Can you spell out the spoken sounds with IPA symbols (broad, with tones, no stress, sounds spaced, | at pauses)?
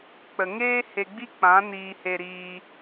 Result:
k͡p ə˨ ŋ eː˦ h e˧ ɡ͡b i˦ k͡p ã˨˦ n iː˧ h e˧ ɾ iː˧